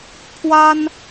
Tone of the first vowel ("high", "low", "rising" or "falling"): high